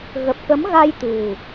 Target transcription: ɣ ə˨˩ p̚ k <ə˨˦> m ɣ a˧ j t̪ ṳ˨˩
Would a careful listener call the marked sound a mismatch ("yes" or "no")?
no